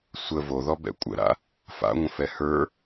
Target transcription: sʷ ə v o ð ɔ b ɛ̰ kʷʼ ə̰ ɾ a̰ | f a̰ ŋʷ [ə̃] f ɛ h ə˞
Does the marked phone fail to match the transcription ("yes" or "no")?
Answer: no